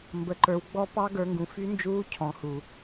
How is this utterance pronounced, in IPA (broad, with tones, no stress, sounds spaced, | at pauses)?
m b ə˨˦ ǃ ə˞˨˦ w ɡ͡b ɔ˦˥ p ɑ˦˥ ɡ ə˞˨˦ ŋ ɡ ũ˨ f y˦˥ n d͡ʒ uː˦˥ cʰ ɔ̃˨˦ h u˨